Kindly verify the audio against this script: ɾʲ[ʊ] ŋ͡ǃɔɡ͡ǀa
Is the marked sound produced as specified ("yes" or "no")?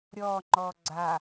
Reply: no